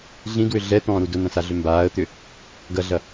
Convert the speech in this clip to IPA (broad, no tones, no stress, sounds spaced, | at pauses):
ɮ ĩ d w ʏ ɮ ɛ t̪ ɔ̃ː ɾ u d ʊ n ɐ̃ s a ɮ ʏ m b aː ə̯ t̪ ʏ | ɡ ɐ ɮ ɐ